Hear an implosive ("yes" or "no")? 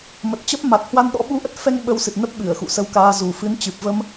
yes